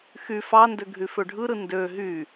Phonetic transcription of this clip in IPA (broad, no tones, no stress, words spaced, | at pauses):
xy fɑndø ɡʱyføɖʱɯɾɯ ndø ɦy